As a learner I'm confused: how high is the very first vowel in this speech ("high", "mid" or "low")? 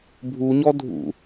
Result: high